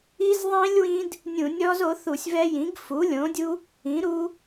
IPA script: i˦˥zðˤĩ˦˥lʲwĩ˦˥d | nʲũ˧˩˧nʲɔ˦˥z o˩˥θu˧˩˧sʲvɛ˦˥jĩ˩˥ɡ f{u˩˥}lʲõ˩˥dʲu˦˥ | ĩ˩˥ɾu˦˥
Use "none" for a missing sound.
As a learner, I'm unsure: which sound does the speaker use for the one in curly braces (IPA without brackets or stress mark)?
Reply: u˩˥